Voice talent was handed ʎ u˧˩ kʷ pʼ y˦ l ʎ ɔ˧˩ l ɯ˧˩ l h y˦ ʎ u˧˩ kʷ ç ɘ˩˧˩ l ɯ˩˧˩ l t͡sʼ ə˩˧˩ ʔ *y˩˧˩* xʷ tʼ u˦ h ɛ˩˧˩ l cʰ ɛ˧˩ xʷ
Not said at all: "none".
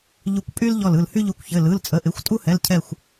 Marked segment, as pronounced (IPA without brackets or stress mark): ɪ˩˧˩